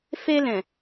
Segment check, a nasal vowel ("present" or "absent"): present